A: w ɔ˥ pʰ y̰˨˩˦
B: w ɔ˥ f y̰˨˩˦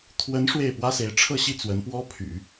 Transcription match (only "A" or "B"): A